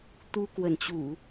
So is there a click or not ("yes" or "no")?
no